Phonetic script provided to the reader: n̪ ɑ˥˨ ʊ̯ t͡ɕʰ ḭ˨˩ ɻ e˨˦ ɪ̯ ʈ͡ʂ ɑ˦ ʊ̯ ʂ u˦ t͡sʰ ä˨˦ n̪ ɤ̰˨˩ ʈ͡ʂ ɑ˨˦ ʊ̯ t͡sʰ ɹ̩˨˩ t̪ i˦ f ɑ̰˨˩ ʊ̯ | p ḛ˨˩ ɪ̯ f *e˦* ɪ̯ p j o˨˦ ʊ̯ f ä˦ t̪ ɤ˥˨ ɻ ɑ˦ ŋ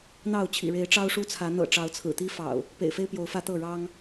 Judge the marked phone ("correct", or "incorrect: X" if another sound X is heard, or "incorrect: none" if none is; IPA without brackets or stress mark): correct